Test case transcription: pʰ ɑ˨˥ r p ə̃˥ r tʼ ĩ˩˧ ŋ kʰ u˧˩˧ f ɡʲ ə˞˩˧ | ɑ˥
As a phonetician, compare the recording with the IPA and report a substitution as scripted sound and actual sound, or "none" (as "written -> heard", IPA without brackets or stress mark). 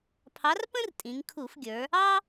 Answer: none